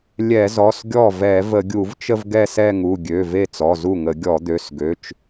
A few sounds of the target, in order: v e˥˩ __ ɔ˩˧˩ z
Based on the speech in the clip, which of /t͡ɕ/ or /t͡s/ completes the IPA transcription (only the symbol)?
t͡s